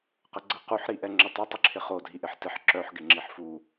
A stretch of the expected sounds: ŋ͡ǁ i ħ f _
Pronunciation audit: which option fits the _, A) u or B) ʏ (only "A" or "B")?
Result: A